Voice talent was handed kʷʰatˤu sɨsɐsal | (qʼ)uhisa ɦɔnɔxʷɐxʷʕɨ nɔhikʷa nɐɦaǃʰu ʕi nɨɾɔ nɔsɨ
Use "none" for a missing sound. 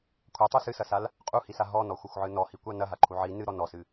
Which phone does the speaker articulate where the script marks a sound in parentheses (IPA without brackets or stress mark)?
qʼ